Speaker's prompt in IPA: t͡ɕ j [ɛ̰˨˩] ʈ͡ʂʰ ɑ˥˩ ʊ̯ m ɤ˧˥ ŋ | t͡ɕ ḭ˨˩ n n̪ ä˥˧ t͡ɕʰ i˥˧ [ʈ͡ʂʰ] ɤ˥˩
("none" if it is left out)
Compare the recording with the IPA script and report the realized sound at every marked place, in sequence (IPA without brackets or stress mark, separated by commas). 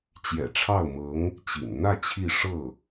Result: ɛ̰˨˩, ʂ